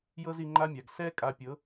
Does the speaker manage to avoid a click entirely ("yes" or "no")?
no